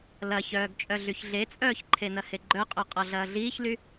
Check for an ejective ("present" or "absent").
present